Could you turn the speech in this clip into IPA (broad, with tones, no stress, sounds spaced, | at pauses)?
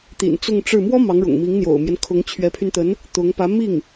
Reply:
t̪ ḭ˨˩ n t͡s ʊ˥˧ ŋ ʈ͡ʂ ɻ̩˥˩ m w ɔ˥ m ɑ˧˥ ŋ ɻ ʊ̰˨˩ ŋ m i˧˥ ŋ n̪ j o̰˨˩ ʊ̯ m j ɛ˦ n kʰ ʊ˧˥ ŋ t͡ɕʰ ɥ ɛ˧˥ pʰ y˧ n t̪ ə˧˥ n | t̪ ʊ˧˥ ŋ p ä˧˥ m i˥˩ ŋ